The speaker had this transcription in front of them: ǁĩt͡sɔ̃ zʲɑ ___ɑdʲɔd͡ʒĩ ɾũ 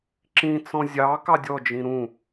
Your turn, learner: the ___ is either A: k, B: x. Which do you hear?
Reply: A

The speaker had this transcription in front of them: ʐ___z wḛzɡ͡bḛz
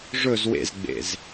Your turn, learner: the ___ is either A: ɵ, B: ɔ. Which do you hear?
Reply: A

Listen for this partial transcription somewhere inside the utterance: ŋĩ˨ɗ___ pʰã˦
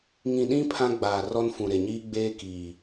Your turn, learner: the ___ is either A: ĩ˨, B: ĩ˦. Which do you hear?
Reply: B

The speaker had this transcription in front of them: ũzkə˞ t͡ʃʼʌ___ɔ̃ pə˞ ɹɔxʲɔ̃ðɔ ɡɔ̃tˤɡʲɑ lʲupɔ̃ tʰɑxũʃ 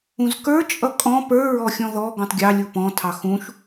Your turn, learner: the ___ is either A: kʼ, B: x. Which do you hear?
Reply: A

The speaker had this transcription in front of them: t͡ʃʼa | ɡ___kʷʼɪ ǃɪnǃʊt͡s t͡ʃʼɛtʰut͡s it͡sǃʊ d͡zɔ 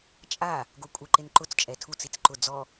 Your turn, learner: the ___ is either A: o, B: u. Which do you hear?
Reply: A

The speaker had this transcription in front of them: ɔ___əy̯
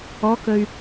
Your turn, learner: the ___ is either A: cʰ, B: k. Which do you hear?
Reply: B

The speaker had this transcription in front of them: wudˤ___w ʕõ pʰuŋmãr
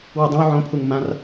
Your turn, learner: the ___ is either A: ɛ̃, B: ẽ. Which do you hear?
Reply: B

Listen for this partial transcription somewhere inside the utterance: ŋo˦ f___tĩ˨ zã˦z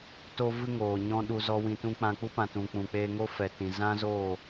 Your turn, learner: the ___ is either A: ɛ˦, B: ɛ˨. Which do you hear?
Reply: B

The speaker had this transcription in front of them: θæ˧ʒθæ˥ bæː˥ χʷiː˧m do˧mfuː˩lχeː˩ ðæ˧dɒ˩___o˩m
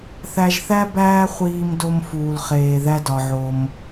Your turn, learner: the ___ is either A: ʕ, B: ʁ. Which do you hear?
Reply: A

